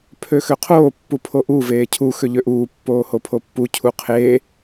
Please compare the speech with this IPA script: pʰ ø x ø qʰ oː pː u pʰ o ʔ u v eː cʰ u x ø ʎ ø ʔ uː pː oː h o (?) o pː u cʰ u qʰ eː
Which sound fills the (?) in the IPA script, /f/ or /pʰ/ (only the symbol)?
pʰ